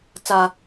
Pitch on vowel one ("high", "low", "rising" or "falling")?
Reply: high